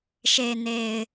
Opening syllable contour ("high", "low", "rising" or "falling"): low